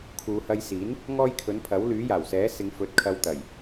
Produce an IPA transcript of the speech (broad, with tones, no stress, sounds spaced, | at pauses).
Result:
kʰ uː˨˧ h ɐ˧ j s iː˨˥ n | ŋ ɔː˥ j kʰ ɵ˨˥ n pʰ ɐ˨˥ w l yː˨˥ j aː˨˩ w s ɛː˨˥ s ɪ˨˧ ŋ f ɵ˨˥ t̚ kʰ ɐ˧ w t̪ ɐ˨˩ j